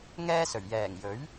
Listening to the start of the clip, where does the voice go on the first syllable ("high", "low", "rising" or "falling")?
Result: high